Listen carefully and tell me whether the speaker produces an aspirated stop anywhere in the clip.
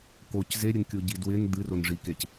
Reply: no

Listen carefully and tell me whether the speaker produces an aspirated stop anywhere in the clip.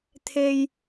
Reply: yes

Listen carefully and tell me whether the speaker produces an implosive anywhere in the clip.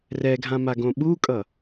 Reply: yes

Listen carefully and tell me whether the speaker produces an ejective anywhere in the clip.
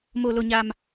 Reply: no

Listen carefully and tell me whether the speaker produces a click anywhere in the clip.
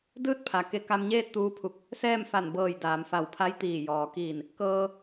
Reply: no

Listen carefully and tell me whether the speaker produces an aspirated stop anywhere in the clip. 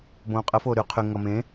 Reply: yes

